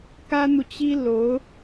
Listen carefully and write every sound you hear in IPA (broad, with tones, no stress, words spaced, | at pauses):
kä˥n̪u˨t͡ɕi˥ lo˧˥ʊ̯